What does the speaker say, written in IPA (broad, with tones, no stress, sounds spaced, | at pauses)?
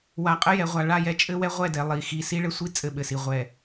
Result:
w a˨ qʼ ə˦ j ɛ˨ ʁʷ a˨ ɭ a˦˨ j ɛ˦ t͡ʃʼ ɘ˦ w ɛ˦ ʁʷ ɛ˦˨ d ɛ˨ lˠ i˨ x i˨ s i˦ ɭ ɘ˦ sʷ i˦ t͡sʼ ɘ˦ ɓ ɘ˨ s i˨ ʁʷ ɛ˨